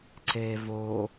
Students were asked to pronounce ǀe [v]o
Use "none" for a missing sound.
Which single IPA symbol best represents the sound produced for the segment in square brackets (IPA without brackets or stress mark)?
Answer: v